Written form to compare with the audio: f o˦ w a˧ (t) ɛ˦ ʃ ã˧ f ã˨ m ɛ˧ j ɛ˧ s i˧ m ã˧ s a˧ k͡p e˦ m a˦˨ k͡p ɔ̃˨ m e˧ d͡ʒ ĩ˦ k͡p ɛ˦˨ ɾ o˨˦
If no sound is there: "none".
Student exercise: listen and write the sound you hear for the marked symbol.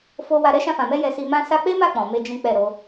ɾ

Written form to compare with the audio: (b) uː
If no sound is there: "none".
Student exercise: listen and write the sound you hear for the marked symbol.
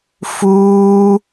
f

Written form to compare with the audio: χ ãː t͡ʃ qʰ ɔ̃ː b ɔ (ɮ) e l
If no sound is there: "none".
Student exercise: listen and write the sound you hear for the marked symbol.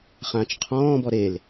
ɾ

